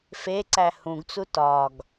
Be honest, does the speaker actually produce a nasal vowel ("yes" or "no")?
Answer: yes